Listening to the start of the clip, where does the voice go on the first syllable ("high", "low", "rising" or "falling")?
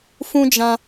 high